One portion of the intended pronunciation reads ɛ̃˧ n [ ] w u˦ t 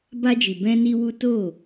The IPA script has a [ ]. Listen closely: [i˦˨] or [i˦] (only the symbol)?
i˦